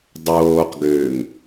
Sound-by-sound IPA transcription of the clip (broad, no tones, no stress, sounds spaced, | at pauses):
dˤ oː q ɡ øː ŋ